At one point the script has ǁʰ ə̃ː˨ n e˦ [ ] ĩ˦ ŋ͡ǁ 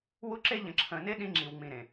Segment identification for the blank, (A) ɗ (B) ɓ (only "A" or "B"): A